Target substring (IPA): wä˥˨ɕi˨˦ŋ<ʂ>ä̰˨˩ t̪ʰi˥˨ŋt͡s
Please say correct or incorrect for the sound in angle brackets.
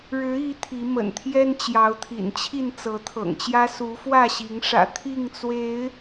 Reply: correct